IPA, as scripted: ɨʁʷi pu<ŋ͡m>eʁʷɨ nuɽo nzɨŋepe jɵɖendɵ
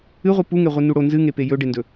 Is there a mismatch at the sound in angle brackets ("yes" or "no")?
yes